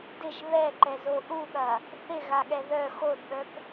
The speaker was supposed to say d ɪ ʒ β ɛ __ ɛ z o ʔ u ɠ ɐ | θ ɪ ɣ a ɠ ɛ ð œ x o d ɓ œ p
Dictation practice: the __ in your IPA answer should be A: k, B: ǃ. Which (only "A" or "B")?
B